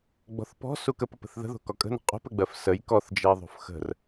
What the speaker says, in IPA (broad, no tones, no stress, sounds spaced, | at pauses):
ɡ͡b ɔ̤ θ p ɔ̤ s u k ə p ə p ə̤ θ ð ə̤ ð o̤ k ɔ kʼ ə̤ n ə̤ qʼ o̤ p ə ɡ͡b ɜ f s ə j k ɔ θ d͡ʒ ɜ ðˤ o̤ f x ə̤ r